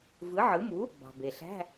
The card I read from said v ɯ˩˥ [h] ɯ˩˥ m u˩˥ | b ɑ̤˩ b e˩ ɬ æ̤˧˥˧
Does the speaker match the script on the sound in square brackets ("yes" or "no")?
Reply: no